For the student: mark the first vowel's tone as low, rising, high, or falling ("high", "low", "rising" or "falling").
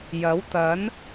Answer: rising